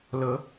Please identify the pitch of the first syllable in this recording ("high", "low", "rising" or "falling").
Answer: rising